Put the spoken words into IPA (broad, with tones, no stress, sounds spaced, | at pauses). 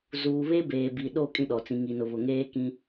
z uː˨ β e˦ b eː˨ b i˨ ɗ o˦˨ kʼ ĩ˦ ɗ ɔ˨ t͡s ĩ˨ ŋ i˨ n ʊ˨ β ʊ˨ ŋ eː˦ k ĩ˦